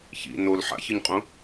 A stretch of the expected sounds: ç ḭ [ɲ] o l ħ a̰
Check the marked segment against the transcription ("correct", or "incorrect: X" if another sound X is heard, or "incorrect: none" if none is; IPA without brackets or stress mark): incorrect: n